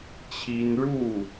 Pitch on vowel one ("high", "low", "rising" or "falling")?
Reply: high